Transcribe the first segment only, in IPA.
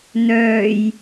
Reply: n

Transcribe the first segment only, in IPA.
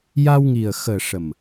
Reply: j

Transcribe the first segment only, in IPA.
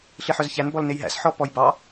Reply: ɬ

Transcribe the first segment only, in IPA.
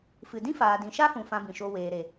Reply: f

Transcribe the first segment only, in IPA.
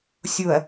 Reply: sʲ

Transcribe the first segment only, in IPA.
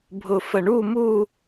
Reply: bʱ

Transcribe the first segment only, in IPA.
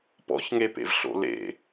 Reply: p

